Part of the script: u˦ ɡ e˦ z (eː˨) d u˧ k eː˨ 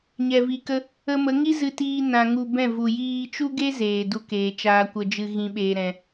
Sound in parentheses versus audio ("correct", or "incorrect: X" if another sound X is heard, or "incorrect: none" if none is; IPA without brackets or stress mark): correct